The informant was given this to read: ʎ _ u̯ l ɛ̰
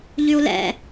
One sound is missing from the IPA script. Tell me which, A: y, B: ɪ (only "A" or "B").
A